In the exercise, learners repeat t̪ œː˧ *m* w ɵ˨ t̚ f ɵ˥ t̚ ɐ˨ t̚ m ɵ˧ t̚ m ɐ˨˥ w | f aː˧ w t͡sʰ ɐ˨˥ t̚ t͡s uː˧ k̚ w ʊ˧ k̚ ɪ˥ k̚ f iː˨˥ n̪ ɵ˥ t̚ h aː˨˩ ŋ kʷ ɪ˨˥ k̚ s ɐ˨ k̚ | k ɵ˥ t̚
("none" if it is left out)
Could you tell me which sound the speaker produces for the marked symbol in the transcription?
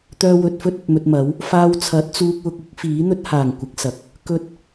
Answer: none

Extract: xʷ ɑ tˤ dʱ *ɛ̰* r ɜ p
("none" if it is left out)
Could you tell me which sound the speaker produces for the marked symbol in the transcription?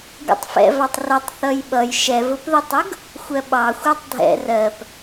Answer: ɛ̰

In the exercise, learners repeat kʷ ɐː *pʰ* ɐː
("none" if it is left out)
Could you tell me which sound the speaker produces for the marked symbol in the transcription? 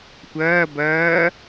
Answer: b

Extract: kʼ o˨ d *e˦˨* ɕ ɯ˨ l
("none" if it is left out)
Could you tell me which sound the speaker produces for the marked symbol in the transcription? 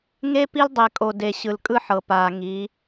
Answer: e˨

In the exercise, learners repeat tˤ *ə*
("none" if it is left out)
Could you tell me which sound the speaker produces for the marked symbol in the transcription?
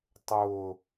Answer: ʊ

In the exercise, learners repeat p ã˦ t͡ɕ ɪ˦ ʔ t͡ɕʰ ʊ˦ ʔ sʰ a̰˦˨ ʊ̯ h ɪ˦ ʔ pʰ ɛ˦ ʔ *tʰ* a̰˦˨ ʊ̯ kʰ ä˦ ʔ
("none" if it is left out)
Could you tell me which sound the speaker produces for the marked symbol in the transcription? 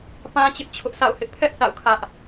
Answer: θ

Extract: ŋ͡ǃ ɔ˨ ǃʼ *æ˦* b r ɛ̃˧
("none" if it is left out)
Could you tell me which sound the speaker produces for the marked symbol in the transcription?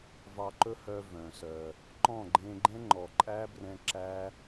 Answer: æ˦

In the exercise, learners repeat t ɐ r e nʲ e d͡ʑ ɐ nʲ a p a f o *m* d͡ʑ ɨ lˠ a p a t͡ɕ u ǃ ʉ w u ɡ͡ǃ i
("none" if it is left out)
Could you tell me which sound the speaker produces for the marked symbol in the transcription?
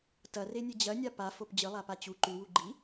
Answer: p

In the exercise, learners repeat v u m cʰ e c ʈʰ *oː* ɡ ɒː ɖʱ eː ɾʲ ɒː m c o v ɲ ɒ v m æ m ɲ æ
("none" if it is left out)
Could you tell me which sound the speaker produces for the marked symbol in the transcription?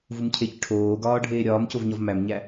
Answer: oː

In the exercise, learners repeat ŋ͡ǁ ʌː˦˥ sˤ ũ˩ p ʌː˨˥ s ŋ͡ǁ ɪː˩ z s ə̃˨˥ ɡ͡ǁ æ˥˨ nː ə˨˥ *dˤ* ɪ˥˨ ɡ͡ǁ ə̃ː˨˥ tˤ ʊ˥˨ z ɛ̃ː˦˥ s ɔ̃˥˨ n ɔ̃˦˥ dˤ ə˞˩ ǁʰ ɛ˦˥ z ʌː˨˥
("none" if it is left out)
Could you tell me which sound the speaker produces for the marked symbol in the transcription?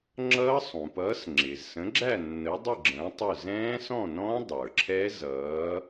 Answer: dˤ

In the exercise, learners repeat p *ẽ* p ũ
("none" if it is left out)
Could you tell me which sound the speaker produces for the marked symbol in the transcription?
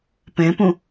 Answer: ẽ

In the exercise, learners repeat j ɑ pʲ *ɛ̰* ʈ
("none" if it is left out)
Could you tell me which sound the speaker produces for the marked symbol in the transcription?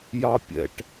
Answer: ɛ̰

